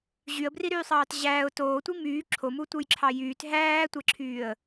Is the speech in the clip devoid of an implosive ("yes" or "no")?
yes